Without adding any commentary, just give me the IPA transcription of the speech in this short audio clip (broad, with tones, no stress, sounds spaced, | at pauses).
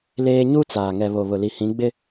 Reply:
l eː˦ ɲ u˦ t͡s aː˨ ŋ ɛ˨ β o˨ β ʊ˨ l i˨ h ĩ˨˦ ɡ͡b ɪ˦